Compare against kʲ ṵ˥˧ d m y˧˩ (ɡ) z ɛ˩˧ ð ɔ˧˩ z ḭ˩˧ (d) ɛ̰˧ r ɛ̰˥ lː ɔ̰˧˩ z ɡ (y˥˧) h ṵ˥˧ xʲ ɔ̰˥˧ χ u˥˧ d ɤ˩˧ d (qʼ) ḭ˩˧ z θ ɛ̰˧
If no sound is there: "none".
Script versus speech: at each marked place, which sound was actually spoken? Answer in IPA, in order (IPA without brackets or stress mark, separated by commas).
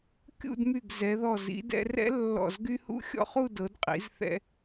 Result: ɡ, d, y˥, qʼ